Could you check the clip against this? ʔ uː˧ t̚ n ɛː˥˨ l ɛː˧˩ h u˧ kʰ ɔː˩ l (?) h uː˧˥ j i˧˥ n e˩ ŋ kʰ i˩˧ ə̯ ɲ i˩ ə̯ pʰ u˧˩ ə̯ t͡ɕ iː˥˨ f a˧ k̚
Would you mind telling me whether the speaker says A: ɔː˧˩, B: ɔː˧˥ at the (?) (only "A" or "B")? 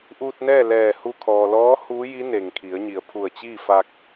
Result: B